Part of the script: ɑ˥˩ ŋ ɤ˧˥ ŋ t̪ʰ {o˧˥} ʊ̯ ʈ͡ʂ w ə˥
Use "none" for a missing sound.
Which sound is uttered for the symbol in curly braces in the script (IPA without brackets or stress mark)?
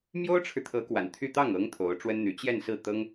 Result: o˧˥